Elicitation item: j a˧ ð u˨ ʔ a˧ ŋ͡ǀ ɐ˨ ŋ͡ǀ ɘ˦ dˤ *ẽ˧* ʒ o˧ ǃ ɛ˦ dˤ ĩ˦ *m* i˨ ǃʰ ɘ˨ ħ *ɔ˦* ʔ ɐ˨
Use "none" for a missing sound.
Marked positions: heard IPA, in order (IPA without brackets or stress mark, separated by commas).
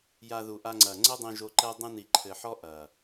ĩ˧, n, ɔ˦